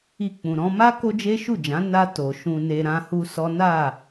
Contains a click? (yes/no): no